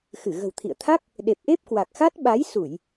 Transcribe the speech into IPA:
x ɨ˧˩ ɣ ə̤˨˩ w t̪ʰ ḭ˧˨ ə̯ t̪ʰ a˦˥ k̚ | ɗ e˨˩ p̚ ʔ e˦˥ p̚ k w a˨˩ k̚ x a˦˥ t̚ ɓ a˨˦ j s u˧˩˨ j

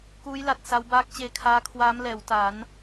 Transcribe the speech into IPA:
k uː˦˥ j l a˨˩ t̚ s a˦˥ w b aː˦˥ k̚ t͡ɕ eː˧ kʰ aː˦˥ kʰ w aː˦˥ m l ɛː˩˦ w t a˩˦ n

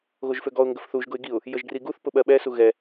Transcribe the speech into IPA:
ɣ o ʒ f ø ɡ ɔ ʊ̯ ŋ ɡ ə f θ u ʒ ɡ ʊ ɪ̯ ɡ i ʊ̯ | j ə ʒ ɡ r i ɡ u θ p ʊ ɓ ɜ ɓ ɛ s u ɣ ɛ

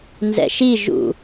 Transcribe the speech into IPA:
n z ɛ̰ ʃ i ʒ ṵ

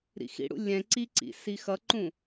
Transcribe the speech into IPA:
ɾ ḭ x ḭ ɽ ṵ lʲ ɛ̃ ǀ i ǀ ḭ s i x ʌ ǃ ũ

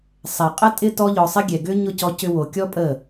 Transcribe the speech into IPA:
sˤ ɛ˨ qʼ ə˦ tʼ ɪ˦ t ɔ˦ ʎ ɔ˧ sˤ ɪ˦ ɡʲ ɛ˨ ɡ ʏ˦ ɲ ʊ˦˨ c ɔ˧ c ʏ˧ w o˨ kʲ ɔ˦ pʼ ə˦˨

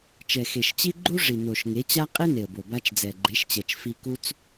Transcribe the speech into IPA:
t͡ʃ ɛ˨ x e˨ ʃ t͡ɕ i˦ ɡ͡ǃ u˦ ʐ i˨ n o˨ ʃ ŋ e˨˦ t͡ɕ a˦ qʼ e˦ n e˨ ə̯ b o˨ b a˧ t͡ʃ d͡z ɛ˨ ɡ͡ǃ e˨˦ ʃ t͡ɕ ɛ˨ t͡ʃ f i˧ k u˦ t͡s

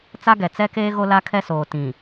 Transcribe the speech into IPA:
t͡s a˦ ɡ ɛ˨ t͡s ɛ˦ k eː˦ ɣ o˦ l a˦ kʰ ɛ˦ s oː˨ t ĩ˨

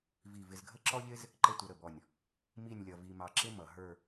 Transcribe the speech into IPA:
v i˧˩ v ɪ˧ z ɡʱ ə˥ ǁ ɔ˥ ʎ ɪ˥ z | ǃ ə˥˧ tʷ ʌ˧ ɾ ə˧˩ b ɔ˧˩ nʲ | m i˥˧ nʲ lʲ ʌ˧ v i˧ m ɑ˧ ǁ ɪ˥ m ʌ˩˧ ɦ ə˞˥˧

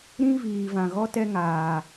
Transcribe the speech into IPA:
ɾ ĩ˦ v iː˨ v ã˨ ɣ ɔ˦ t ɛ˦ ŋ aː˨

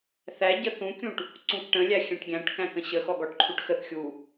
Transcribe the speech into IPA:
θ æ ɟ ə θ ũ kʲ ũ ʈ | ǀ ũ k ʈ ə̃ lʲ æ xʲ æ̃ ʈ ɡʲ æ̃ ʈ k æ̃ k ə̃ ɕ ə x ɔ ɡ ɔ ʈ ǃʰ u ʈ x ə θ xʲ u

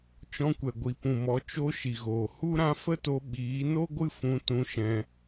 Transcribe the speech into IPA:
t͡ʃ ɔ̃˧ kʷ ɛ˨ ɡʷ i˨ p ũ˨ m ɔ˨˦ t͡ʃ o˧ ʃ i˨ ɣ oː˨ h u˦ ɾ ã˦ f ə˦ t o˧ ɓ iː˨˦ n o˦ ɡʷ ɨ˦ f ũ˧ t ũ˧ ʃ ɛ̃˧

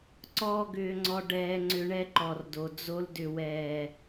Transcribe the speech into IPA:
ǀ ɔː˦ ɡ ʏː˧ ŋ͡ǀ ɔ˧ ɖ ɛː˧ ŋ͡ǀ ʏ˧ ɳ ɛ˦ ǃ ɔ˨ r d o˨ d͡z o˧ l d ʏ˨ w ɛː˨

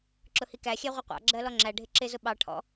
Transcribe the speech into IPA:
ǁ ʊ h i k æ xʲ æ ʁʷ ʌ qʷ ɑ̰ ɡ͡ǁ ɜ l ɔ ŋ͡ǁ æ ɖʱ ɪ ǁ ɪ z ʊ ɓ ɑ ʈʰ ɔ̰

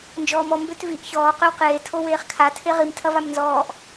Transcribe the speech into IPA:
n d͡ʒ ɔː m ɔ m b ø t v i ʔ ç ɔː q ø w q eː tʰ o w eː χ kʰ a tʰ e ʁ i m tʰ ɐ v a m n z ɔː ʔ

